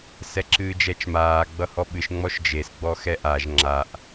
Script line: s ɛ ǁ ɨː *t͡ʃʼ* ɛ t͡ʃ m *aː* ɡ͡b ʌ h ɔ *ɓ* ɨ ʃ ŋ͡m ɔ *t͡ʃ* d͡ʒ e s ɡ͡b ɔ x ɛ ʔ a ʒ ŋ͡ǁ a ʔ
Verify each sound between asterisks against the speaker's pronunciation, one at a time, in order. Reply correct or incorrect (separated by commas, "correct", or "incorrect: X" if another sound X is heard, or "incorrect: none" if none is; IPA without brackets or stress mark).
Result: incorrect: d͡ʒ, correct, correct, incorrect: ʃ